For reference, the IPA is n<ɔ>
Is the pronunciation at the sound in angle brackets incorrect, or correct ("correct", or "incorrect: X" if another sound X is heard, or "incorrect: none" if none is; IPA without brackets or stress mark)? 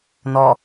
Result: correct